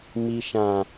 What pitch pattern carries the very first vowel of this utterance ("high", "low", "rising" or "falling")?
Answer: low